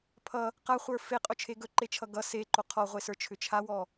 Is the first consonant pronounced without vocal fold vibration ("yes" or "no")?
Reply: yes